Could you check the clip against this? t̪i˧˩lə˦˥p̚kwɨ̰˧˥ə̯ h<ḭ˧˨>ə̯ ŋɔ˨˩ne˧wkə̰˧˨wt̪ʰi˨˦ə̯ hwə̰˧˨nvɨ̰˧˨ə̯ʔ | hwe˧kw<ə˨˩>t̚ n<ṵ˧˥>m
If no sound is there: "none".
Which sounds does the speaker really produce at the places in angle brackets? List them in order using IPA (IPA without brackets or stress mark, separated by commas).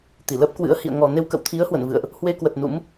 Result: ḭ˧˨, ə˨˩, ṵ˧˥